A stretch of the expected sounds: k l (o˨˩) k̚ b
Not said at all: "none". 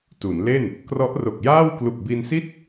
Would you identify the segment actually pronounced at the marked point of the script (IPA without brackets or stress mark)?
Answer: u˨˩